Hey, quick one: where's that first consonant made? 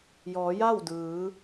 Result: palate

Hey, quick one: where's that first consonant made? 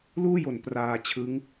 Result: tongue tip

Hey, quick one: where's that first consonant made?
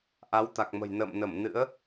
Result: throat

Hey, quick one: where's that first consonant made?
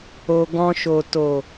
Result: velum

